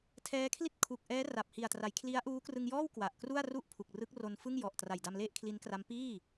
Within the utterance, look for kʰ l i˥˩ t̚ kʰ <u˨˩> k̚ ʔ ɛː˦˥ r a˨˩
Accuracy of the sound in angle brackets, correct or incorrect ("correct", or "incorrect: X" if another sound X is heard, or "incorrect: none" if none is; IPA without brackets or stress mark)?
correct